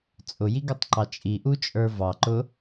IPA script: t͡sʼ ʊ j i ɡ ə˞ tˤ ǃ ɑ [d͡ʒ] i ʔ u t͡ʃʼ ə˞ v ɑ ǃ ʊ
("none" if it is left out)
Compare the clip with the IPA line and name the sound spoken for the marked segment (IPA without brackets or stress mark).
t͡ʃʼ